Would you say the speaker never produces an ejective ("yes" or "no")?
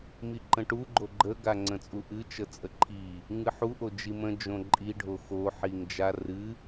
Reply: no